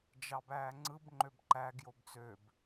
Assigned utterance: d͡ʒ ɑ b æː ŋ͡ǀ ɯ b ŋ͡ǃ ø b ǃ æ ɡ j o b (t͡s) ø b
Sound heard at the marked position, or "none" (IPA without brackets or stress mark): t͡s